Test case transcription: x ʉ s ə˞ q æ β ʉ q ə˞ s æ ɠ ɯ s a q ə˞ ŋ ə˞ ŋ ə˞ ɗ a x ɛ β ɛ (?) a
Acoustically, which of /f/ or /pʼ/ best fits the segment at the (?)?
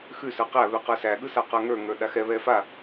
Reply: f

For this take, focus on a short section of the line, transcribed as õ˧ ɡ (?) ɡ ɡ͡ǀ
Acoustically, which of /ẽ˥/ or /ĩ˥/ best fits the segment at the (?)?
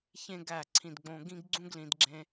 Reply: ĩ˥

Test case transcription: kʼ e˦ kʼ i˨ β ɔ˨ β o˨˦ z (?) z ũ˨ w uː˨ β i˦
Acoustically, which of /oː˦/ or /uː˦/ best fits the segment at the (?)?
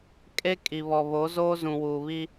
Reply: oː˦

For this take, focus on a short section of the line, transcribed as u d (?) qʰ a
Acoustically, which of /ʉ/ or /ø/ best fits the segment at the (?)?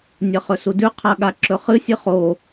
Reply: ʉ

